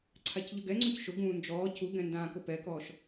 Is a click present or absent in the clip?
present